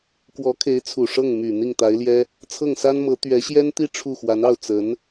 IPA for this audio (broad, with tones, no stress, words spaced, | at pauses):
kwɔ˧˥kʰe˧˥ɪ̯t͡sʰu˨˩ ʂɤ˥˩ŋ my˨˩ n̪i˥˩ŋt̪a˧˥ɪ̯ljɛ˥ | t͡sʰɤ˥˩ŋsa˥nmɤ˧˥ t̪ɥɛ˧˥ɕjɛ˥nt̪i˥˧ ʈ͡ʂʰu˥˩xwa˧˥nɑ˥˩ʊ̯ t͡sə˧˥n